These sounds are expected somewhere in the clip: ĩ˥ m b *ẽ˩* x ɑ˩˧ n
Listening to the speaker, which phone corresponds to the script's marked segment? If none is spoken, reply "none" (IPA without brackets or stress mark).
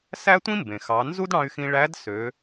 ẽ˩